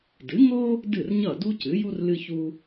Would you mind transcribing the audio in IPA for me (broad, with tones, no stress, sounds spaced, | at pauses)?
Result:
d ɨ˩˥ ŋ o˥ | d ɨ˥˩ r ɲ ʌ˥˩ d u˥ c ɨ˩˥ j u˥ r l ɨ˧ ç u˧